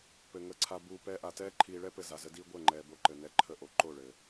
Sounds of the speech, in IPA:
pɘ˨ŋə˧ǀʰa˧ buː˨ pɛː˧ʔa˨tɛː˦ ǃʰiː˨ɭɛ˦ pɘ˧za˨zə˦diː˦ ɡʷɛ˦˨ŋ͡ǃɛː˨bo˧ ǃɘ˨nɛ˧ ǃʰə˦˨ʔo˧ ǃo˦˨ɭɘː˨

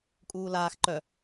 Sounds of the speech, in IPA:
kʼuːlaːx ǃœ

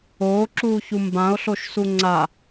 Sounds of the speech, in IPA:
oːǁuːçu mbão̯ɬoʃ suŋ͡ǀa

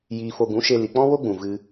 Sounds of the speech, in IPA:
jiː˧fo˧ ɡũ˨˦ʃe˧ li˨k͡pɔ̃˦wo˦ɡ͡bũ˨ vɨ˧

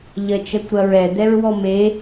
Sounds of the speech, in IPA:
ʎɜt͡ʃɜkʷɾɐɹɛ d̪ɛɹwɔme

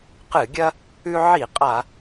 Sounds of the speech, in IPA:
qɨ˧˩˧ɡʲɐ˦ | ʉ˦ ʕi˧˩˧ qʼa˧˩˧

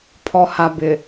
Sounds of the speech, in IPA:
pʰɔ˨ha˨bɪ˨

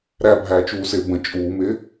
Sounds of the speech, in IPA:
ɾæbʱæːt͡ʃuːsɪː bə̃ t͡ʃʼuːmɪː

